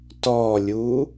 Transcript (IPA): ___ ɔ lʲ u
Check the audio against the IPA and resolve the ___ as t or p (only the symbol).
t